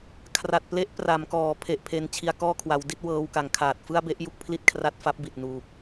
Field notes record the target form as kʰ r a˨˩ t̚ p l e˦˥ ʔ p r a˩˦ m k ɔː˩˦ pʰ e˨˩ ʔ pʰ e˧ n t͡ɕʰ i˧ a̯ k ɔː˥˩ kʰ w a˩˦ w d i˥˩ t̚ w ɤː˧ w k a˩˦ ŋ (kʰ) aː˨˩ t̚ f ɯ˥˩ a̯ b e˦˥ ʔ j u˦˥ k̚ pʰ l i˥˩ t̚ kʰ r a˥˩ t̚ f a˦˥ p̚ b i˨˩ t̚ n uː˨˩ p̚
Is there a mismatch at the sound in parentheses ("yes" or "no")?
no